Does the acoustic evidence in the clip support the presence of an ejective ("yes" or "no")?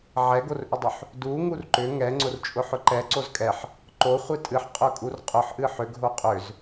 yes